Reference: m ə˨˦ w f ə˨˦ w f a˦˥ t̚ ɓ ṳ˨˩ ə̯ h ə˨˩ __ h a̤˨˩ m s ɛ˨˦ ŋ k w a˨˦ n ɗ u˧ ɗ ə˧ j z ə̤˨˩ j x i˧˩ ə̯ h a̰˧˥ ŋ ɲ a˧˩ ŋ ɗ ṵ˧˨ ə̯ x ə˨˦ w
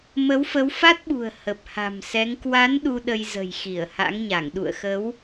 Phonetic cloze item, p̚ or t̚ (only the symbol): p̚